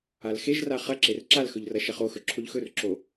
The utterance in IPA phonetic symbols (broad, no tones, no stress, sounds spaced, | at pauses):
a l x e ʒ r a χ ɐ ǁ e r ǁ a l x ɵ ʎ r ɐ ʃ ɐ χ o x ɵ ǁʰ o ʎ x ɵ r ǁ o